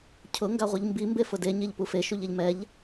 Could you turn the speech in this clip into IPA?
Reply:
cʰʊ ŋɡaʁʷiʎmbi mbefʊde ɲeʎpufe ʃuʎɛʎmɛʎ

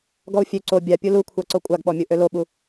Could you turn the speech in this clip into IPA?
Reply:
ɡɔu̯fʲø ǀo bʲa pʲulukʷʰa ǀokʷʼaɡɓɔmʲu ʔøloɓu

